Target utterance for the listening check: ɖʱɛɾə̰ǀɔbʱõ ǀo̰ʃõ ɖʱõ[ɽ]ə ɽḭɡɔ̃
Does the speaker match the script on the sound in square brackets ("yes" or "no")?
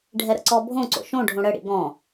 yes